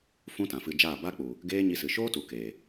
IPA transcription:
f ũ˦ t ã˨ f ɨ˧ d͡ʒ aː˦˨ b a˦ k͡p u˨ | ɡ eː˦ ɲ i˧ s ɨ˨ ʃ oː˦ t u˨ k eː˨

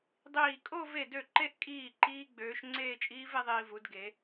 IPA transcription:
dˤ iː˧˩ kʼ o˥˧ v e˧˩ d ø˧˩ ǃ e˨˥ ʔ kʼ iː˧˩ ǃ iː˦˥ ɡ͡b øː˨˥ ʃ ŋ͡ǀ eː˥˧ t͡ʃʼ iː˦˥ v e˨˥ ðˤ iː˧ v u˨˥ d ɡ e˨˥

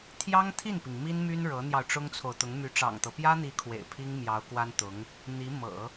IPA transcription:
t̪ʰ j ɑ˥ ŋ t̪ʰ i˥˩ n p i˩ ŋ m i˥ n m y˥ n ɻ ɤ˧˥ n̪ j ɑ˧ ʊ̯ ʈ͡ʂ ʊ˥ ŋ t͡sʰ o˨ ʊ̯ t̪ ʊ˧˥ ŋ m y˧˥ ʈ͡ʂ ɑ̰˨˩ ŋ t̪ ɤ˦ p j ä˥ n̪ i˧˥ kʰ w ḛ˨˩ ɪ̯ pʰ i˥ ŋ m j ɑ˧˥ ʊ̯ k w a˥ n t̪ ʊ˧˥ ŋ | n̪ i˧˥ m ɤ̰˨˩˦

